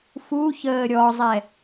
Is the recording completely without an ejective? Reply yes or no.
yes